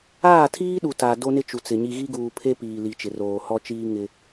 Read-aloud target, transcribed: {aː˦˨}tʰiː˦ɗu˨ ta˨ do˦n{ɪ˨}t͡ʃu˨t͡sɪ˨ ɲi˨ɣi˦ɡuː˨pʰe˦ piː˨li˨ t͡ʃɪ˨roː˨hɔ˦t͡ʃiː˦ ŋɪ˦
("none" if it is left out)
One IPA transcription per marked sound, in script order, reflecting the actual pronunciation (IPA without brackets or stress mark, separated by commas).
aː˦˨, ɪ˦